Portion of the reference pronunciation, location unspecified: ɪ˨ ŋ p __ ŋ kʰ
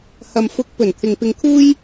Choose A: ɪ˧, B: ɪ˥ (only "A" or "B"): A